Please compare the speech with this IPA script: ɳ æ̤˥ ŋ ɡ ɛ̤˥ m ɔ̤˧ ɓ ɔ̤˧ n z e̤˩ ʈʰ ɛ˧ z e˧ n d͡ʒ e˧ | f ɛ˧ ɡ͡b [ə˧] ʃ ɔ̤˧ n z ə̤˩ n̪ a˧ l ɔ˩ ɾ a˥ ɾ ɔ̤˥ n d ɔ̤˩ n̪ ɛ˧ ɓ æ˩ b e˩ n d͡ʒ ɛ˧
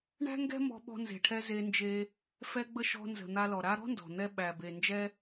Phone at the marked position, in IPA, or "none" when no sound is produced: ə˧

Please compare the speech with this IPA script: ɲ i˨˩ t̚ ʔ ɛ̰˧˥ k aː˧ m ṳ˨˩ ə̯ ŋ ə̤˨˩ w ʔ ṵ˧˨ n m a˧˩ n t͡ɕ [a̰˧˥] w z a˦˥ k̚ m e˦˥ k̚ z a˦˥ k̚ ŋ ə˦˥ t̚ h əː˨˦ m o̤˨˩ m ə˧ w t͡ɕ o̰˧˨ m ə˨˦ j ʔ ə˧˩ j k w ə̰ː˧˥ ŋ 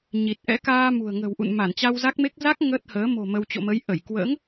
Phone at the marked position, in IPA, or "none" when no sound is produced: a˧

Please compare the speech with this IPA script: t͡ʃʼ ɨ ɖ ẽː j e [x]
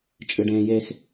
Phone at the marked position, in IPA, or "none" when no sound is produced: x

